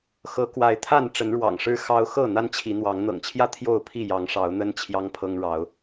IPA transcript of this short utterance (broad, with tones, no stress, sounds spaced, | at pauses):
x ɤ˨˦ k w a˨˦ ɪ̯ t̪ʰ a˥˨ n ʈ͡ʂ ə˨˦ n ɻ w ɑ̰˨˩ ŋ ʂ ɻ̩˦ x ɑ˦ ʊ̯ x ɤ˥˨ n̪ a˦ n t͡ɕʰ i˨˦ n̪ w ɑ˨˦ ŋ n̪ ɤ̰˨˩ ŋ t͡ɕʰ j ä˥˨ t̪ʰ j o˥˨ ʊ̯ pʰ i˥˨ j ɑ˨˦ ŋ ʂ ɑ˨˦ ʊ̯ n̪ ə˦ n t͡ɕʰ j ɑ˦ ŋ pʰ ɤ˦ ŋ ɻ ɑ˨˦ ʊ̯